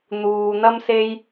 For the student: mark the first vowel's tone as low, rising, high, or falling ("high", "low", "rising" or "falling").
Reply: low